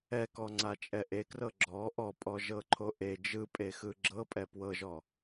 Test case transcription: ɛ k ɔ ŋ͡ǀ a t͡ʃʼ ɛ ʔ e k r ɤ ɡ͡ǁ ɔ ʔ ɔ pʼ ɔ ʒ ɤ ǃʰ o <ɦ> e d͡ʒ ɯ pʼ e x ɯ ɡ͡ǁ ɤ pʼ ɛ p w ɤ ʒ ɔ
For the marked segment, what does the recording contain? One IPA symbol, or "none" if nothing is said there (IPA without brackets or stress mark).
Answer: ʔ